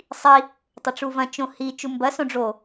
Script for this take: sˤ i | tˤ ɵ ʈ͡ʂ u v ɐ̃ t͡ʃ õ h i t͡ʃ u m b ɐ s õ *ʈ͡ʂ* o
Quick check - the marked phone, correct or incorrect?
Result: incorrect: ɖ͡ʐ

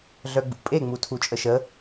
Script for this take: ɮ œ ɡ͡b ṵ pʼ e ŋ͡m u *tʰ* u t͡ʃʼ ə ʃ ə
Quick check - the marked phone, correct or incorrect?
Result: correct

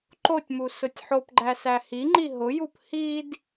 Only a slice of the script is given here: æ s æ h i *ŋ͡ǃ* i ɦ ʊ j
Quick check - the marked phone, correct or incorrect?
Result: correct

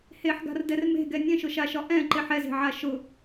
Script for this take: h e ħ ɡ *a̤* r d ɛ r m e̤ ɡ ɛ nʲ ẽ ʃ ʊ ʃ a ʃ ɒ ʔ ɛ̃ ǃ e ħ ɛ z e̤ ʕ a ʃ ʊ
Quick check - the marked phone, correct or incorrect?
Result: correct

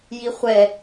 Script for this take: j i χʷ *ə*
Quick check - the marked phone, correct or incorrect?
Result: incorrect: ɛ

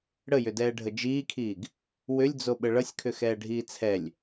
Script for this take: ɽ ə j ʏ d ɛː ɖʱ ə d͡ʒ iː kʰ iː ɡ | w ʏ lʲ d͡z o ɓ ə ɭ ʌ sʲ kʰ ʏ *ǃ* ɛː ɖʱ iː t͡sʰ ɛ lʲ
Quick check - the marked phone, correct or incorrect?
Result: incorrect: x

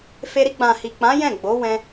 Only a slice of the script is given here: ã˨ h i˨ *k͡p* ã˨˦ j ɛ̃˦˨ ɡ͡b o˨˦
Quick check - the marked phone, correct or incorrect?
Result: correct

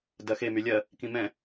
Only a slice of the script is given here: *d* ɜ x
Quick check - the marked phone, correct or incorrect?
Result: correct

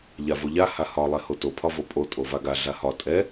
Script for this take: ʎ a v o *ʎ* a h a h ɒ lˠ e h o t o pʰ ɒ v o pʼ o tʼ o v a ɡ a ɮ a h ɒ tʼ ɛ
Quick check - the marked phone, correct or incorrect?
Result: correct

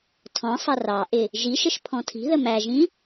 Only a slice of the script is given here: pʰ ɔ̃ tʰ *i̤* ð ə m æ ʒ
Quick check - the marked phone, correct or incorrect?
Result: correct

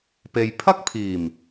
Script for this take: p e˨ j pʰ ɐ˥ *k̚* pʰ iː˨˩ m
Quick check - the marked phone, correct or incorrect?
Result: correct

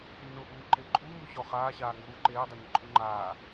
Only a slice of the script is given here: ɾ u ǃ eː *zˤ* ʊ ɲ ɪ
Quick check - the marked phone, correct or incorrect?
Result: incorrect: dˤ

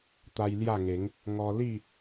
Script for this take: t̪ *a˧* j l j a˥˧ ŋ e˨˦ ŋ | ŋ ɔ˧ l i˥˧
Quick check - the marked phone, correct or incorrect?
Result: correct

